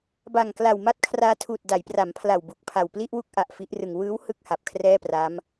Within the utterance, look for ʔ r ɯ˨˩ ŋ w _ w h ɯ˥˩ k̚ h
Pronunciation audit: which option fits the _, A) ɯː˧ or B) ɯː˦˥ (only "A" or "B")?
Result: B